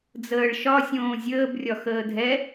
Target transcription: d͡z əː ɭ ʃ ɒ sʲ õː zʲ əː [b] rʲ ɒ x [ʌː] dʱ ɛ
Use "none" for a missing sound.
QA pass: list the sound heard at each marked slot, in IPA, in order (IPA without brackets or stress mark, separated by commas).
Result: b, əː